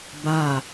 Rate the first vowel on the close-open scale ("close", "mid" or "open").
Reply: open